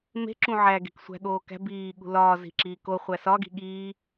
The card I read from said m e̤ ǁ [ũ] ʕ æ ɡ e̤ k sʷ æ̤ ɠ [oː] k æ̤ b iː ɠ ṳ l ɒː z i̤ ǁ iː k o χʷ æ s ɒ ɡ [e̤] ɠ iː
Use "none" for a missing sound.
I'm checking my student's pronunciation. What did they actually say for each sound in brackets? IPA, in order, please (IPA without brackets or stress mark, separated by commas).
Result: ũ, oː, i̤